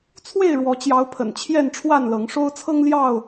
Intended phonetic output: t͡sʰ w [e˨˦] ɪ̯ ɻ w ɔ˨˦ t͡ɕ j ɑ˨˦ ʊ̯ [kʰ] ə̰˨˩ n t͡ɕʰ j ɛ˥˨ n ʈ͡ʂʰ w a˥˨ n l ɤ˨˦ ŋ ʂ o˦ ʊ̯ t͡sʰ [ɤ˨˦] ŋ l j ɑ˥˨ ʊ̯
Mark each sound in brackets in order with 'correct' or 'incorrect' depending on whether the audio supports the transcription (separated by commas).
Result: incorrect, incorrect, incorrect